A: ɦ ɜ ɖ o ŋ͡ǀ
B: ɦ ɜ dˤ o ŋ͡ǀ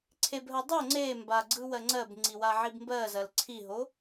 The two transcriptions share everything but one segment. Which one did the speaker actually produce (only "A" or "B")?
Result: B